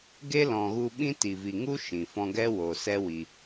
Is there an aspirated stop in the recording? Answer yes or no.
no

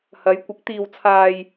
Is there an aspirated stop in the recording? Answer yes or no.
yes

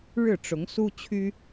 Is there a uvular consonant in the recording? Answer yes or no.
no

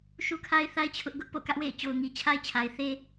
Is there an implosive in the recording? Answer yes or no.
no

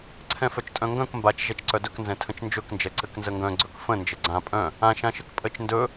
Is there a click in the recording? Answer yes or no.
yes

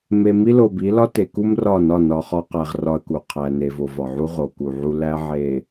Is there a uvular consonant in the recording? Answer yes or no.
yes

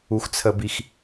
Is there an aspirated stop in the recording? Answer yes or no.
yes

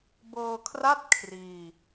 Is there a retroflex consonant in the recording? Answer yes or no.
no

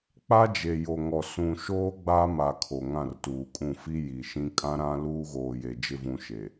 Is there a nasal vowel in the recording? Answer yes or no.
yes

